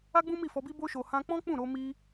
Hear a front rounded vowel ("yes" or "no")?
no